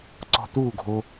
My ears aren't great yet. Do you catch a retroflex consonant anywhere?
no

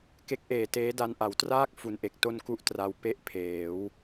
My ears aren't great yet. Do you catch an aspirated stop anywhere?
yes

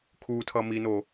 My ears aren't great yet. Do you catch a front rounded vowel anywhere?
no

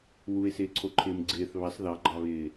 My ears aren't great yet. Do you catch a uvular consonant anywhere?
no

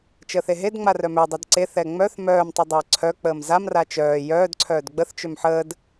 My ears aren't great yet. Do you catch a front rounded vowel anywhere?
yes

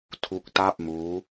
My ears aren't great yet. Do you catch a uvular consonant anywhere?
no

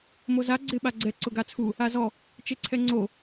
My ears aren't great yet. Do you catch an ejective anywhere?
no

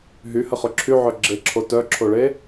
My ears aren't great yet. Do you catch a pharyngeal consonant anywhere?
yes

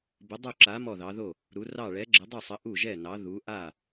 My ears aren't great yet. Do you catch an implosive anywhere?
no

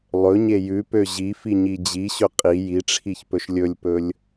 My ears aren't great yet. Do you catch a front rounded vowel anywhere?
yes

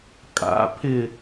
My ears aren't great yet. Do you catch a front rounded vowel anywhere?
no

